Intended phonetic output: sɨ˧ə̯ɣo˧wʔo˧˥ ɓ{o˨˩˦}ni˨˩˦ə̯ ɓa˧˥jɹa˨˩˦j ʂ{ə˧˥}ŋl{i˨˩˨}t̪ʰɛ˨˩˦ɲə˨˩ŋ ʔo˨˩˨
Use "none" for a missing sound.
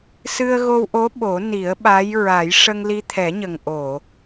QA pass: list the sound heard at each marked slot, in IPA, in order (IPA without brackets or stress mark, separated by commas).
o˨˩˦, ə˧, i˧